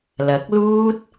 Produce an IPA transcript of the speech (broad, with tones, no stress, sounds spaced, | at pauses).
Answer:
l ɐ˨˥ k̚ l uː˥ t̚